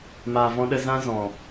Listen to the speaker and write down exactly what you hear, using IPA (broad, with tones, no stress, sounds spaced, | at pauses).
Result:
m aː˨ v ɔ̃˧ ɗ ə˧ z ã˦ z ɔ̃˨